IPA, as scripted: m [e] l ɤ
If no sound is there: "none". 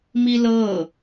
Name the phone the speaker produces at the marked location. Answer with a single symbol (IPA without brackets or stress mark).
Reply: i